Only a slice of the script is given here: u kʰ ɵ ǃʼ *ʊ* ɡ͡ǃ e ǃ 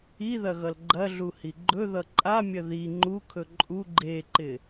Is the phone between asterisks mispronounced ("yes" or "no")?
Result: yes